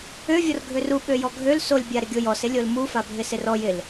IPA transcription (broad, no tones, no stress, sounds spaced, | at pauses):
ø vʲ ɔ r ɡʱ ø r u ɓ ø j ɔ ɡʱ ø l s o lʲ bʲ a ɾ ɪ ɡʲ o j ɔ s ɪ lʲ o l m u f a bʱ ɪ s ɪ r ɔ j ɪ l